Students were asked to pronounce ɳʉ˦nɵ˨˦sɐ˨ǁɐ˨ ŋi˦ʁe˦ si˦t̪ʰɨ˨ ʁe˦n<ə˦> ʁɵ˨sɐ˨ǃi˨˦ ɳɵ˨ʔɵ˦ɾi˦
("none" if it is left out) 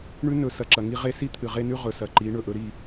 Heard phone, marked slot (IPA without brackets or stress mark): ʉ˦